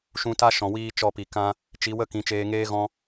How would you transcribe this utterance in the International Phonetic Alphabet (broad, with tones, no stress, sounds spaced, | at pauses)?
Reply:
ʃ ũ˧ t a˦ ʃ ɔ̃˨ w iː˧ t͡ʃ ɔ˦˨ p i˨ k ã˧ | t͡ʃ i˨˦ w ə˦ k ĩ˨˦ t͡ʃ eː˧ ŋ eː˦ ɣ ɔ̃˧